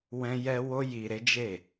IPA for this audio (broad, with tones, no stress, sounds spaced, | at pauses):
w ɛ̃˦ j ɛ˦ w o˦ j i˧ ɾ e˦ d͡ʒ e˦˨